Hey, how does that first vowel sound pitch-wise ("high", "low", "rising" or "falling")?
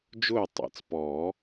falling